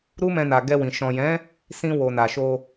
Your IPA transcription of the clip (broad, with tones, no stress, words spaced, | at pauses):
ɾu˦mɛ̃˧na˨ ɡɛ˧wĩ˨ ʃɔ̃˨jɛ̃˨˦ | sĩ˧wo˨ na˨ʃo˧